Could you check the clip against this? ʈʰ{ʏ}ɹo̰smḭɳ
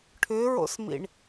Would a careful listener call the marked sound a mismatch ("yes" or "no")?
no